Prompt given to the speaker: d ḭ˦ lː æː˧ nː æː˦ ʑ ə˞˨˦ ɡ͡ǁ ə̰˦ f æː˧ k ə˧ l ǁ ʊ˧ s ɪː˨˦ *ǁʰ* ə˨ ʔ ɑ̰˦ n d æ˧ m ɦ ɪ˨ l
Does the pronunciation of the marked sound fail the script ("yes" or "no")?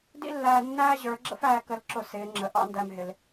yes